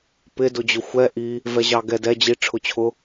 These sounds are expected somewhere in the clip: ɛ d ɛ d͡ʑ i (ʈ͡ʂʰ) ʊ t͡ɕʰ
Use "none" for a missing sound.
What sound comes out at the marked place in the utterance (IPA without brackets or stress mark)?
ʈ͡ʂʰ